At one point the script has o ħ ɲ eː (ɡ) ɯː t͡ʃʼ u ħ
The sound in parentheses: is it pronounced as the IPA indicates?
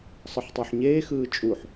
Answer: no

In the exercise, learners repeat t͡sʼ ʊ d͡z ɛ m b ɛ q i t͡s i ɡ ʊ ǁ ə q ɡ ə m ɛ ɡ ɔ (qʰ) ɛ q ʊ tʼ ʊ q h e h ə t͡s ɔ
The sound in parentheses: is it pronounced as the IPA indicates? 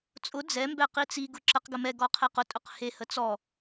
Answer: yes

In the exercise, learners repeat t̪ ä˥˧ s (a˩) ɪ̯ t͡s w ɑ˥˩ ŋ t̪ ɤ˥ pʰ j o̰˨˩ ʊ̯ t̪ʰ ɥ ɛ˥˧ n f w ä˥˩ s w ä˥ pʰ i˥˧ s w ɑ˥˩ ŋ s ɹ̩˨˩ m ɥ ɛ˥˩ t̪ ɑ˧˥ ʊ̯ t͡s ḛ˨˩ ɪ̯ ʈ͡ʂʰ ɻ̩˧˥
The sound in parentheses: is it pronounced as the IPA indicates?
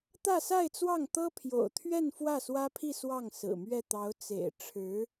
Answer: no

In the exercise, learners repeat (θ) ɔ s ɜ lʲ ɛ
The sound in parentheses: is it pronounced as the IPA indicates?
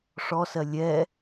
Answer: no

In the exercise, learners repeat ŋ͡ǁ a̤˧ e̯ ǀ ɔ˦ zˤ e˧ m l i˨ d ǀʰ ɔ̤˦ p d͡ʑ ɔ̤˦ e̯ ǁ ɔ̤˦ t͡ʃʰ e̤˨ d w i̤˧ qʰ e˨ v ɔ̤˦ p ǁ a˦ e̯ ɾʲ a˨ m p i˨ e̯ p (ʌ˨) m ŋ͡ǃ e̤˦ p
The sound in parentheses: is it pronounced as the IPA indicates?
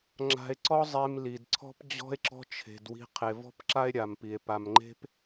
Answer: no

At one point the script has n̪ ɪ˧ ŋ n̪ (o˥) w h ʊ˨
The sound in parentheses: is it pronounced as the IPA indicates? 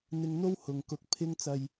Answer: yes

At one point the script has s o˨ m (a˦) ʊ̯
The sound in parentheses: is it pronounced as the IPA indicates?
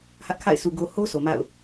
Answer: no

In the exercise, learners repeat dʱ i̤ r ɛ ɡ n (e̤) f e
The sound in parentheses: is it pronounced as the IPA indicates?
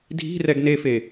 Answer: no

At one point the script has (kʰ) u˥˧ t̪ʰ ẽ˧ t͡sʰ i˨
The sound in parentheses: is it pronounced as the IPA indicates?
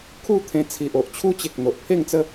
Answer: yes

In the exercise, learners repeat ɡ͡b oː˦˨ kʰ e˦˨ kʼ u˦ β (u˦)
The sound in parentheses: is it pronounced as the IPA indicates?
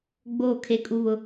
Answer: no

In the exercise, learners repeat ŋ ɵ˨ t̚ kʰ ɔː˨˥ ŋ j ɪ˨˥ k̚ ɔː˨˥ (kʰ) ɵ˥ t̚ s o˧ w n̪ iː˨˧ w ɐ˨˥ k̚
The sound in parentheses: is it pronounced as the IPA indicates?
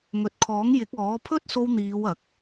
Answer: no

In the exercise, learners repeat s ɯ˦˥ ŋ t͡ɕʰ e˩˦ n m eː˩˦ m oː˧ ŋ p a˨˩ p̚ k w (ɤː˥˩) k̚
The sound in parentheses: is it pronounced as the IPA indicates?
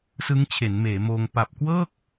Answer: yes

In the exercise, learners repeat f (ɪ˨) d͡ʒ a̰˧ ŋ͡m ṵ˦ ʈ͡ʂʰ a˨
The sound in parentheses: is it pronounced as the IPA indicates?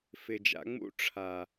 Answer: yes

